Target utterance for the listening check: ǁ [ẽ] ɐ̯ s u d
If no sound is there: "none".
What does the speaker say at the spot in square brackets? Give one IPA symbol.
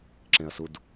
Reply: ẽ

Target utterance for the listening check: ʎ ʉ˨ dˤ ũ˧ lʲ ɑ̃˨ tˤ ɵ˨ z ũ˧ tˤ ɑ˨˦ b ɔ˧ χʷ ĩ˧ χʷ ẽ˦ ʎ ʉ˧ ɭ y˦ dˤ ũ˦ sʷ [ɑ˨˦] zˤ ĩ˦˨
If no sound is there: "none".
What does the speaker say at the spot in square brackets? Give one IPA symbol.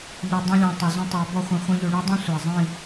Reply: ɑ˨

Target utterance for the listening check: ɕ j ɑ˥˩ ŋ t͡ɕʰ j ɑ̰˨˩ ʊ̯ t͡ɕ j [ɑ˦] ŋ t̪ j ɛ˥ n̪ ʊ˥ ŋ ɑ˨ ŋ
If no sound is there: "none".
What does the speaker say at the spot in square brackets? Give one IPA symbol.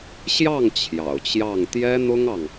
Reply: ɑ˥˩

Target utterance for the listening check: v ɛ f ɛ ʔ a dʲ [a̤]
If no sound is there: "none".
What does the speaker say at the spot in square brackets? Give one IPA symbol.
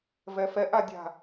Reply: a̤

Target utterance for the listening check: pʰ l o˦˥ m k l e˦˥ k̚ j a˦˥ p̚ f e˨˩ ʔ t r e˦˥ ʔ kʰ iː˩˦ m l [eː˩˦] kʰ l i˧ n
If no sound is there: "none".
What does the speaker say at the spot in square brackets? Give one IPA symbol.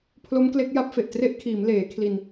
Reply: eː˩˦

